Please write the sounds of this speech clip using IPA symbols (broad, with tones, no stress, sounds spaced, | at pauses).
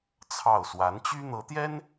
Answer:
t͡sʰ ɑ˥˩ ʊ̯ s w a˧˥ n t͡ɕ y˥ n̪ ɤ˧˥ t̪ j ɛ˥ n